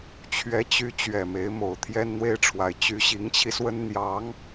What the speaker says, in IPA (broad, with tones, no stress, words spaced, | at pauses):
t͡ɕʰɥɛ˧˥t͡ɕy˧˥ t͡ɕɥɛ˨˩me˧˥ɪ̯mo˨˩ʊ̯ t̪ʰjɛ˥nn̪we˥ɪ̯ʈ͡ʂʰwa˧˥ɪ̯ t͡ɕy˧˥ɕi˧˥ŋt͡ɕʰi˧swə˥n n̪jɑ˧˥ŋ